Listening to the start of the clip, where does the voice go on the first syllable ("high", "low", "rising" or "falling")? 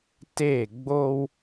falling